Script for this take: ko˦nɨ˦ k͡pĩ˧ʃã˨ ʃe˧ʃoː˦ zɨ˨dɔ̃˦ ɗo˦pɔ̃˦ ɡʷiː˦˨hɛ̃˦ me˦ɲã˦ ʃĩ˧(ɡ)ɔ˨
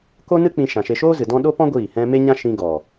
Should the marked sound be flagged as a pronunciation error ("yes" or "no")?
no